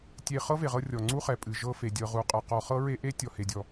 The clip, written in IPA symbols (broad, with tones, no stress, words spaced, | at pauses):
tʲe˦ χɤ˥ ve˨ʁɤ˦ rʲɔ˩ŋ͡ǀu˥χɛ˩ pʼɨ˩ʒɤ˦fe˩ dʲɤ˨ʁu˨qʼɤ˩ qɔ˨χɤ˥ ɹe˥ʔe˥ tʲɔ˨he˩dʲɔ˩